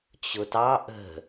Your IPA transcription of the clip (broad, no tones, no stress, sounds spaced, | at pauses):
t͡ɕ ʊ t ɑ ʔ ə̤